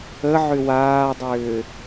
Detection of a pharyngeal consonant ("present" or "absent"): present